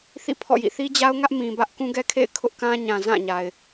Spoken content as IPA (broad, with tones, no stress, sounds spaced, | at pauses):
θ ḭ˦˨ pʰ ɔ̰˦˨ j ḭ˦˨ θ i˦ d͡ʑ a˦ ʊ̯ ŋ ä˦ ʔ m ĩ˨ b ä˦ ʔ k ũ˦ ɡ ɛ˦ kʰ ḛ˦˨ ɪ̯ kʰ ʊ˦ ʔ k ã˦ ɲ ã˨ z ã˦˨ ɲ a˨ ɪ̯